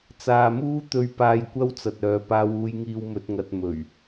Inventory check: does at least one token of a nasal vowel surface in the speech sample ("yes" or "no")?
no